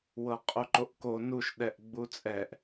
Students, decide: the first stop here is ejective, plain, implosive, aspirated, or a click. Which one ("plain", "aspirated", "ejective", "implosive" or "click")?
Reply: ejective